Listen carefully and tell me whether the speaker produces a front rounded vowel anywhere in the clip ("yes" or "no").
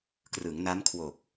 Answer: no